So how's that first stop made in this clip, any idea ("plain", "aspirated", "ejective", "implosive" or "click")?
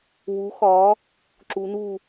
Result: click